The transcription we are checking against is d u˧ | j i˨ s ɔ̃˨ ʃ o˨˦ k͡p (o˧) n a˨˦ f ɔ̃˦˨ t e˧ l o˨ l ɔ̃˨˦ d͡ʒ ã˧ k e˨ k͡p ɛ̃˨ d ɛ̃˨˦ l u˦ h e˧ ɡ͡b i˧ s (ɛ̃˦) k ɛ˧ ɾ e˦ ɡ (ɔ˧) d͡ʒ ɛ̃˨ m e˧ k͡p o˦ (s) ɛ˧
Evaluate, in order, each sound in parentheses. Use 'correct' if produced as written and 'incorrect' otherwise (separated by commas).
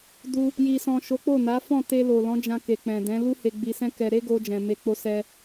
incorrect, correct, incorrect, correct